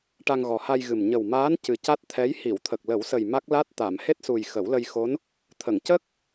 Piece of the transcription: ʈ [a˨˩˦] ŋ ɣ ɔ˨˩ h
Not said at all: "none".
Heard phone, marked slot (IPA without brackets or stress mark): a˧